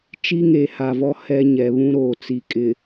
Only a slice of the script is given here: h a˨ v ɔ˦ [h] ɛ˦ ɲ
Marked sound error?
no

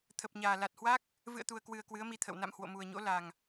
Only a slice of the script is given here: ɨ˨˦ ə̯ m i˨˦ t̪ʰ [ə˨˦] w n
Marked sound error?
yes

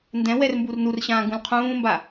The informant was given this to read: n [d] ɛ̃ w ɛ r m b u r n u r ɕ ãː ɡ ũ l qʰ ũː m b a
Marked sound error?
no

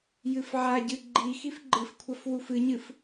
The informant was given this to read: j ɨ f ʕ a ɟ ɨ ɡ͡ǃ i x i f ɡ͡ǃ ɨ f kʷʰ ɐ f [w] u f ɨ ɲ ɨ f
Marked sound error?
no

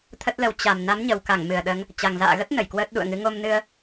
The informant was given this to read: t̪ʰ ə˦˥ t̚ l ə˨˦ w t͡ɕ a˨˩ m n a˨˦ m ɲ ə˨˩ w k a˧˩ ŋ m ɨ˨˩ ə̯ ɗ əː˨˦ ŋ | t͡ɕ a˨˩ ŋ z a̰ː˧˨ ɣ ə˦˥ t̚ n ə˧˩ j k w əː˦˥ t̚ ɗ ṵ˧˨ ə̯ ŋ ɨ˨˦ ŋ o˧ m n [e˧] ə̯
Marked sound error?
yes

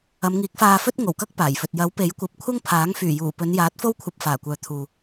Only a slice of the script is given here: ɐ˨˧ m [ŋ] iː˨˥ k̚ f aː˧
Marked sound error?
no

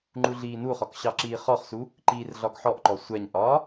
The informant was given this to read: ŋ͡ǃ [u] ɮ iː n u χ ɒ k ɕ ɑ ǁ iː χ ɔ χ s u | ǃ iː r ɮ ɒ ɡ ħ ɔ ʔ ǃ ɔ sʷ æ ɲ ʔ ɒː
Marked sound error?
no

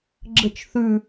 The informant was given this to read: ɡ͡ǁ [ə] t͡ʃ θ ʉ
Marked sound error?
no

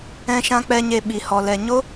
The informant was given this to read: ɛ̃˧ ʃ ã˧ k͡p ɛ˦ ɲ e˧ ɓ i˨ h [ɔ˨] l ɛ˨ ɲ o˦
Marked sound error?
no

